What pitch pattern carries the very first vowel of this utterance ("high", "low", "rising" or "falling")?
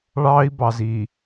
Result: high